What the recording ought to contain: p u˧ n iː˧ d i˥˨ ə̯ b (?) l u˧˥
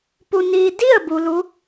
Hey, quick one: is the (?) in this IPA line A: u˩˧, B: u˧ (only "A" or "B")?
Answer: B